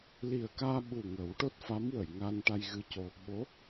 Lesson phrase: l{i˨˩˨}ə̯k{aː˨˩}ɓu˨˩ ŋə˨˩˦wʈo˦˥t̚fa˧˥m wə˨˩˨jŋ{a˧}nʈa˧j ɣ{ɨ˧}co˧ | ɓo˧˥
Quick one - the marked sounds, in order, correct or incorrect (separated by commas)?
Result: incorrect, incorrect, correct, correct